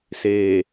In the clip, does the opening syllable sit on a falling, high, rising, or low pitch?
low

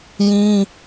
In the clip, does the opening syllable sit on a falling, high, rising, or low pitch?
high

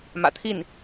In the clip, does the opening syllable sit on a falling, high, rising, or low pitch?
low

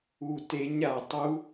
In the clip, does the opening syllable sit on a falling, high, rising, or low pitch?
low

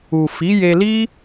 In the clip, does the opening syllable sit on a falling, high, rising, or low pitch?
low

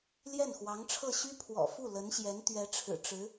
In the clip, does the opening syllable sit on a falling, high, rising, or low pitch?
falling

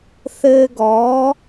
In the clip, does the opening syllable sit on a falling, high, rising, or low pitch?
high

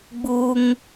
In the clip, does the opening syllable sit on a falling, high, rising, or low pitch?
high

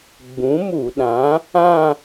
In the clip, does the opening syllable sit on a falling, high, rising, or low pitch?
rising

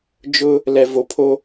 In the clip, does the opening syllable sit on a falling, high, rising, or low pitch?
high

